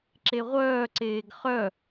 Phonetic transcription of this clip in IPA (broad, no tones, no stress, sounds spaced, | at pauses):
ǁ e ʁʷ œː ǀ eː ɡ χ œ